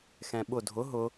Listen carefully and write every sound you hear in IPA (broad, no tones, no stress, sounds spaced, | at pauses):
x ɛ̃ ɓ ʊ dʱ ʊ ɦ ʊ